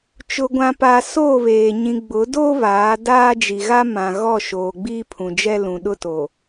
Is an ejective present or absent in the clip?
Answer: absent